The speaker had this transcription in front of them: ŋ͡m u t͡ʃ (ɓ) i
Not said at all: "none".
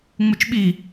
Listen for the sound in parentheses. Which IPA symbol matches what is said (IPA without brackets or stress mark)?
ɓ